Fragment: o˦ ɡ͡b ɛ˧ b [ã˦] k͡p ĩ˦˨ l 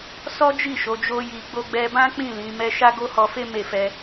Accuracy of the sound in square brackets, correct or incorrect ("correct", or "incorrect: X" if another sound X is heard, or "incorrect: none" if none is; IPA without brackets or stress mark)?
correct